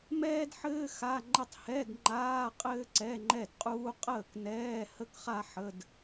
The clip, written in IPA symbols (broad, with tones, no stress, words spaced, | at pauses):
mɛː˥dħɘː˥ xa˧˥˧ ŋ͡ǃə˥˩tˤ hɛ˧˥˧dŋ͡ǃaː˧˥˧ qʼɘː˥ǀɛ˧˥˧ŋ͡ǃɛ˥˩dqʼuː˥ qʼəː˥˩knɛː˧˥˧ hə˥kχa˥ ħə˧˥˧d